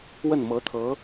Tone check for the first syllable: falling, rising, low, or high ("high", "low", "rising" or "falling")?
falling